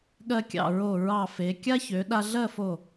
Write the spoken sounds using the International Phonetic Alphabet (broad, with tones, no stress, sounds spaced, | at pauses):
ɠ ɜ˧ kʲ ɑ̰˧˩ ɹ o˧˩ ɹ ɑ˧˩ f e˩˧ kʲ a˥ ç ø˩˧ ɗ a˧ ɮ ɜ˥˧ f o˧˩